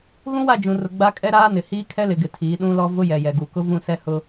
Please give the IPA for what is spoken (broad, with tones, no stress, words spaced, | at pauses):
ɣũ˦wa˦˨d͡ʒũ˨rʊ˨ ɡ͡ba˦kʼɛ˦ɾaː˦nɪ˨ hiː˦kʰɛ˦lɪ˨ɡɪ˨ tʰiː˨˦ɗũ˦lɔ˦ vʊ˦jɛ˨ jɛ˨ɡu˨kʊ˦ vũ˦˨sɛ˦hʊ˦